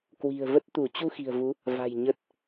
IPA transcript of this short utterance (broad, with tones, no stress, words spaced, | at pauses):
kwi̤˨˩ə̯və˦˥t̚t̪u˧˩ t͡ɕu˧xi̤˨˩ə̯vu˨˦ | va̤˨˩j ɲə˨˩t̚